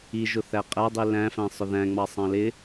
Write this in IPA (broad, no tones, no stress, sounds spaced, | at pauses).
i ʒ ʊ θ æ qʼ æ dˤ i l æ̃ f æ̃ sˤ ʊ ð æ̃ ŋ͡m ɑ sˤ ɑ̃ l ɪ